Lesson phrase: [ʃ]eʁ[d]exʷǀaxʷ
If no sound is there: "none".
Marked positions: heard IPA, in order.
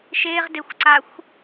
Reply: ʃ, d

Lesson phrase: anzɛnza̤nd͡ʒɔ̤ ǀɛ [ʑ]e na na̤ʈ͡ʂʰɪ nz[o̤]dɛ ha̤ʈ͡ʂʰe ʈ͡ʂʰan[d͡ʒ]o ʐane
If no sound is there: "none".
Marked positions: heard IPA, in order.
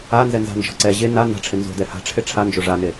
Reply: ʑ, o̤, d͡ʒ

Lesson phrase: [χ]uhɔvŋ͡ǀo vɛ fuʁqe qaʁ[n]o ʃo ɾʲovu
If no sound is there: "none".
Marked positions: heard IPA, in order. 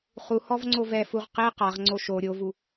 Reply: χ, ŋ͡ǀ

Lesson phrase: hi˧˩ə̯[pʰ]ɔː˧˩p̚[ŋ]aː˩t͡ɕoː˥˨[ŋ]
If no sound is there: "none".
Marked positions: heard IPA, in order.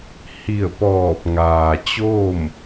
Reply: p, ŋ, m

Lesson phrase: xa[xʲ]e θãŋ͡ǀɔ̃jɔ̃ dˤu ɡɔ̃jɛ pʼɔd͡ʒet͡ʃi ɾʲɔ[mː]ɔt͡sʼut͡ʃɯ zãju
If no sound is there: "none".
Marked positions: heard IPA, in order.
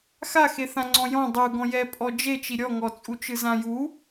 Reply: x, ŋ

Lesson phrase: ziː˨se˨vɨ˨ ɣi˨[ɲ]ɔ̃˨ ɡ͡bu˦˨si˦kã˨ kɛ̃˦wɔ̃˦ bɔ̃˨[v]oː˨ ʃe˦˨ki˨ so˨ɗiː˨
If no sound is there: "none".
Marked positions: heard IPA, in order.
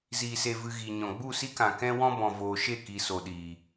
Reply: ɲ, v

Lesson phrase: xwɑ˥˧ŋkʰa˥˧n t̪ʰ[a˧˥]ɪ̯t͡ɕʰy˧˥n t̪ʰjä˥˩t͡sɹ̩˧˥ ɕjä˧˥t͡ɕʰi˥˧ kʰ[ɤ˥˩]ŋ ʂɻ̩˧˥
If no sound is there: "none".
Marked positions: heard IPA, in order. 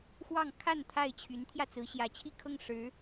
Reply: a˥˩, ɤ˥˩

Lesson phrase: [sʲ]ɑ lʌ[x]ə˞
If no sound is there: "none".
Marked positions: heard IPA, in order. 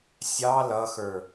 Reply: sʲ, x

